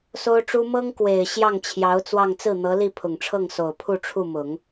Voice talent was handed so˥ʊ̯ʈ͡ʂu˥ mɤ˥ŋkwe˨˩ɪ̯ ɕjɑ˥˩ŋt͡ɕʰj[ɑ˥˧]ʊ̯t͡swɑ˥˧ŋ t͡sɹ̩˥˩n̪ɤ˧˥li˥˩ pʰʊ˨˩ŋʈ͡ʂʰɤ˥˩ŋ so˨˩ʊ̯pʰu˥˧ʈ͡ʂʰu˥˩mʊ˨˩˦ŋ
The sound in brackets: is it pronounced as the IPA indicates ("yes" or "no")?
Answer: no